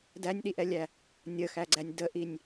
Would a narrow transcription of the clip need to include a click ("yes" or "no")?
yes